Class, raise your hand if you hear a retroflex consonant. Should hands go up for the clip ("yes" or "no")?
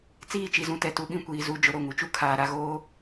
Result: no